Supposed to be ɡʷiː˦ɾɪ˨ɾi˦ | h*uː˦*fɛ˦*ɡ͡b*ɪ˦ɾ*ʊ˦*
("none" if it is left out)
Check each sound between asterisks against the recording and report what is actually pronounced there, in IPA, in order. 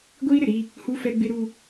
u˦, ɡ͡b, u˦

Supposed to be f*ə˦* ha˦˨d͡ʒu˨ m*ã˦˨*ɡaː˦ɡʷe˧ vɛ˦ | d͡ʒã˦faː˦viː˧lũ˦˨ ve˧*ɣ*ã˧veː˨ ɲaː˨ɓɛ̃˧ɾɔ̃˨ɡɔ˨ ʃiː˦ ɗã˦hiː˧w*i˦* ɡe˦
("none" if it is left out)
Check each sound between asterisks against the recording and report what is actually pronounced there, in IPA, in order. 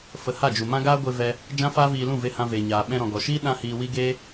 ə˨, ã˦, h, i˦

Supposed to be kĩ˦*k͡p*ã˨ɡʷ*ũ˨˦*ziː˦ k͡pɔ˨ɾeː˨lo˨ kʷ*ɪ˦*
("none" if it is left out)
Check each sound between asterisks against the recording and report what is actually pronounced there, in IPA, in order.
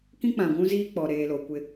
k͡p, ũ˦, ɪ˦

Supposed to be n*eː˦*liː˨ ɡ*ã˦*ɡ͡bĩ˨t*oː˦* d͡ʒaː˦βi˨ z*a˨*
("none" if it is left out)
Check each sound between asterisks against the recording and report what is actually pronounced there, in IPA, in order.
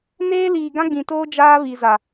eː˦, ã˦, oː˦, a˨

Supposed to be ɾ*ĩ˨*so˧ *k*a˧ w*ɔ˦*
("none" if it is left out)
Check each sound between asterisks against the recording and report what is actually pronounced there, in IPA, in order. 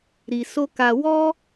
i˨, k, ɔ˦

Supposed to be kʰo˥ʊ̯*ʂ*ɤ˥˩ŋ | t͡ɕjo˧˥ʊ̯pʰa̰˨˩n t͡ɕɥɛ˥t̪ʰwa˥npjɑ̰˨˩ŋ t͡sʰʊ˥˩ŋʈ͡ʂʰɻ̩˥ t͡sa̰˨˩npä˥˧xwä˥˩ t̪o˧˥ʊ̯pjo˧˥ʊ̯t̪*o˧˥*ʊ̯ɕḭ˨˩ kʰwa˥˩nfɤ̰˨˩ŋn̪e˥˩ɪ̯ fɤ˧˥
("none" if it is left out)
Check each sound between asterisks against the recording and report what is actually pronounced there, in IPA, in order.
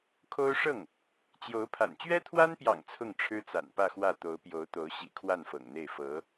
ʂ, o˧˥

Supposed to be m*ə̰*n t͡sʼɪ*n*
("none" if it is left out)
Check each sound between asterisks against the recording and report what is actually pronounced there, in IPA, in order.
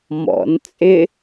ɔ̰, none

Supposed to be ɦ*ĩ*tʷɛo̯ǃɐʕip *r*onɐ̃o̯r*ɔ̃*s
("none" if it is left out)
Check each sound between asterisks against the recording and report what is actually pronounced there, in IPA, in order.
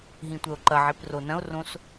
ĩ, r, õ

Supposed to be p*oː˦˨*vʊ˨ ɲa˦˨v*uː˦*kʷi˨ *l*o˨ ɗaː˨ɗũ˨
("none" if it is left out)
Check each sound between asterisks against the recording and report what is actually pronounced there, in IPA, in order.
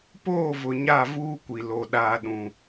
oː˦˨, uː˦, l

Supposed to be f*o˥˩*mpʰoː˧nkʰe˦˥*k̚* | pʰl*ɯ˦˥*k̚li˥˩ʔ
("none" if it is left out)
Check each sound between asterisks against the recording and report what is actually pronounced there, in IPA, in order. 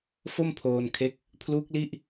o˥˩, k̚, u˦˥

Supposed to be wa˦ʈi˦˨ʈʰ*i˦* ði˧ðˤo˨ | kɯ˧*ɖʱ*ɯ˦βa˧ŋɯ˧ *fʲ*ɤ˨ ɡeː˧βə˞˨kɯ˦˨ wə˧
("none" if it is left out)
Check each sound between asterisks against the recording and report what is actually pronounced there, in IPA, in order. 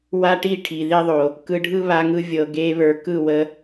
i˨, ɖʱ, vʲ

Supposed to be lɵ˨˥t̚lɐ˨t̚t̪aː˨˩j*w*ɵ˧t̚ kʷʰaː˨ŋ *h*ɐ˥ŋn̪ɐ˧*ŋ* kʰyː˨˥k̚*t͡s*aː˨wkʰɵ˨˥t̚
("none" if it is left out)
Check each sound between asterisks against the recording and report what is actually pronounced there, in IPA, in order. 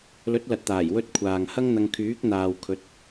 w, h, ŋ, n̪

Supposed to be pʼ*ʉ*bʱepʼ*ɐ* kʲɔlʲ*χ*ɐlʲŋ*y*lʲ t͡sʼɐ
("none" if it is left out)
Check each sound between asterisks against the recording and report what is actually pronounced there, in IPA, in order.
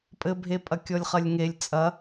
ɘ, ɐ, χ, e

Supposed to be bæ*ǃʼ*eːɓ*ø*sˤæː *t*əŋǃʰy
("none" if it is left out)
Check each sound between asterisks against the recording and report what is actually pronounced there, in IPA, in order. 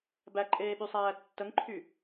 ǃʼ, y, tː

